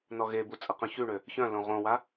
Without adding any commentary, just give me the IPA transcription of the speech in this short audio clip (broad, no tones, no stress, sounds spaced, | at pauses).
n ɔ ɣ e b u t͡sʼ ə q œ̃ ç y ɳ ø | ç œ̃ l õ ʁ õ w a